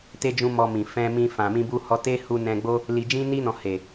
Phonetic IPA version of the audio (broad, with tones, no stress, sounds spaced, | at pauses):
t e˦ d͡ʒ ũ˦ m ɔ˧ m ĩ˨ f ɛ̃˧ m ĩ˧ f ã˨ m ĩ˧ b u˧ h ɔ˧ t e˦ h u˧ n ɛ̃˧ ɡ͡b o˦ | l i˧ d͡ʒ ĩ˦ n i˧ n ɔ̃˨ h e˨